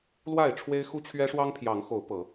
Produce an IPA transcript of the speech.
l w a˥˨ ɪ̯ ʈ͡ʂʰ w e˦ ɪ̯ x u˦ t͡ɕʰ ɥ ɛ˦ ʂ w ɑ˦ ŋ pʰ j ɑ˨˦ ŋ x o˨˦ ʊ̯ p ɤ˨˦

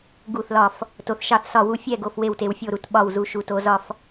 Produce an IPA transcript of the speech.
ɡ u˦˨ θ l ɒ˦˨ f | t o˨ θ ʃ ɑ˦˨ θ s ɒ˦˨ w u˦˨ fʲ ɛ˦˨ ɡ o˨ f w e˦˨ w t e˨ w fʲ o˦˨ ɾ u˦˨ t ɓ ɒ˦˨ w z u˨ ʃ u˨ t o˨ z ɒ˦˨ f

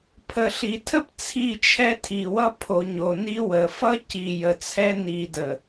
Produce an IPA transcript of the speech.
pʰ ə˨ ɬ i˨ tʰ ə˦ p t͡sʰ i˦˨ t͡ʃʰ ɛ˦ tʰ i˨ w ʌ˦ pʰ o˨ ɲ o˨ n i˦ w ə˨ f ʌ˦ c i˨ j ə˨ t͡sʰ ɛ˦ n i˨ d ə˨

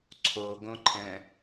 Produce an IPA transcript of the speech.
ǀʰ o ɡ õ ǃʰ ɛ̃

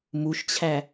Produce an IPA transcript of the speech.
m u ʃ t͡ɕʰ æ

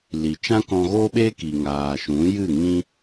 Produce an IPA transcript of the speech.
l i˨ t͡ʃ ã˦ k ɔ̃˧ ɣ oː˦ ɓ eː˦ k i˨ ŋ aː˨ ʃ ũ˨˦ j ɨ˦˨ ŋ ĩ˦

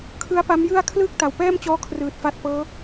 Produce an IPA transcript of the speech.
kʰ ɯ˦˥ a̯ p a˦˥ m j ɯ˥˩ a̯ kʰ l ɯː˥˩ k̚ t a˨˩ w p ɛː˥˩ m t͡ɕ ɔː˦˥ kʰ r ɯː˨˩ t̚ f a˦˥ t̚ p ɤː˦˥

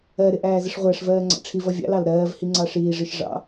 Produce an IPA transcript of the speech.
ɜ ɾ ɪ ʔ æː z ɪ ʂ ʁʷ æ ʂ v ɜː ŋ͡ǀ ɑ̰ ʈ͡ʂʰ i v ʌ vʲ ɑ̰ l ɑ l ɾ ɜː v h i ŋ͡ǀ ɑ ʂ iː ʐ i ʃ ʐ ɑ̰

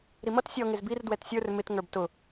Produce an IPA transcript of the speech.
ɾ i m ʌ t sʲ ɔ ŋ ɪ z b i r d w ɛ t sʲ ə˞ r m ɪ t ŋ ə˞ b t ʊ

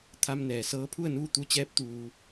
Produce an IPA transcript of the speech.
t̪ʰ a˧ m n ɛː˩ s ɤː˧˥ pʰ u˥˨ ə̯ n uː˥˨ t̪ u˧˥ t͡ɕ ɛː˧˥ p̚ t̪ uː˧

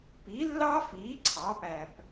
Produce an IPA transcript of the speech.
p i˩˥ lː ɑ˥ f iː˩˥ ǀʰ ɑ˩˥ p æ˨˩ p

